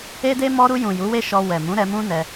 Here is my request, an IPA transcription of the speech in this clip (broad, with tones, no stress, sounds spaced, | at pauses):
e˦ d e˦ m ɔ˧ ɾ u˧ j ũ˨ j u˨˦ w e˦ ʃ ɔ˧ w ɛ˨ m ũ˨˦ ɾ ɛ˧ m ũ˦ n ɛ˧